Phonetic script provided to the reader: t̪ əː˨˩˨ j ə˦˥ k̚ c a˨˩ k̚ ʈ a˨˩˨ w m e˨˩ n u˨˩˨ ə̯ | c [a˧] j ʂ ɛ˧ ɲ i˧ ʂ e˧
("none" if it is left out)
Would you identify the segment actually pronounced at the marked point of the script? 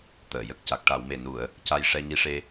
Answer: a˧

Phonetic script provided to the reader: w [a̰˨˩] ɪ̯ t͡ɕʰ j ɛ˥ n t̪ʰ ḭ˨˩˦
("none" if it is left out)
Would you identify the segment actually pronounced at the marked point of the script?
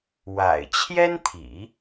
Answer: a̰˨˩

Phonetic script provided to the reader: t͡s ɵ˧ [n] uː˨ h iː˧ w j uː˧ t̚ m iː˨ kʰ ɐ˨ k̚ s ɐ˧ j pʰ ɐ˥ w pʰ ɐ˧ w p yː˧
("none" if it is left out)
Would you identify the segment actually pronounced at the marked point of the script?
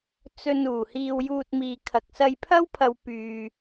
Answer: n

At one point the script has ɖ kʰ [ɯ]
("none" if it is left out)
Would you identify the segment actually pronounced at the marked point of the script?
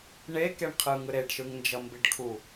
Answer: u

